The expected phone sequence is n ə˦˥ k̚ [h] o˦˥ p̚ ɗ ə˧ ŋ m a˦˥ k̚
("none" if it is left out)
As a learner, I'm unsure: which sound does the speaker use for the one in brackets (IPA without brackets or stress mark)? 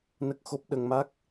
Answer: x